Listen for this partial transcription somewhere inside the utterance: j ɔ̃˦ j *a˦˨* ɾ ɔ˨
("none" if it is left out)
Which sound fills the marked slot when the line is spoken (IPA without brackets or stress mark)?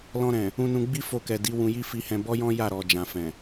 a˦˨